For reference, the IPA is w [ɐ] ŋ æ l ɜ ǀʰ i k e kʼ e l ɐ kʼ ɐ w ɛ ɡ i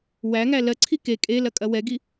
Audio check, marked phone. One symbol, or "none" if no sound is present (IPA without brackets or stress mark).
æ